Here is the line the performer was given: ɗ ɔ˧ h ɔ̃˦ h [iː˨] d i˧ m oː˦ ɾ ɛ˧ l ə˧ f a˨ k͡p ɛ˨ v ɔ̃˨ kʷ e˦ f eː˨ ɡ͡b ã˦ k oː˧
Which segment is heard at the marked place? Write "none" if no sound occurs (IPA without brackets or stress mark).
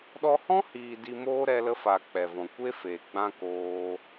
iː˨